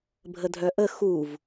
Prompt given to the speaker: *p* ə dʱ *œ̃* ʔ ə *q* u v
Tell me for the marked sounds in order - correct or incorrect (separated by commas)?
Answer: incorrect, incorrect, incorrect